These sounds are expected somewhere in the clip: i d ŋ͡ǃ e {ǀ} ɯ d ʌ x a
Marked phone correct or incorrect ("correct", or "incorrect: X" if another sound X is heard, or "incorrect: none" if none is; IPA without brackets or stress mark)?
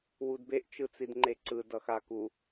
correct